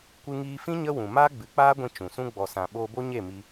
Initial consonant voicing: voiceless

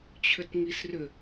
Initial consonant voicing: voiceless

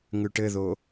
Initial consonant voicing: voiced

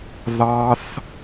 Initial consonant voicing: voiced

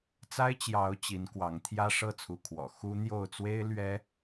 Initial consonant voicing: voiceless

